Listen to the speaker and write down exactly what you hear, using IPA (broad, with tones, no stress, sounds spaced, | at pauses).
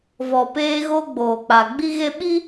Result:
v ɔ˨ p eː˦ ɣ o˦ ɡ͡b oː˨ k͡p a˨ ɡ͡b i˦ ɣ e˦ ɓ i˦